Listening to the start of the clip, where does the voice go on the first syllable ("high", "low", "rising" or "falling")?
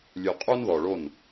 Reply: low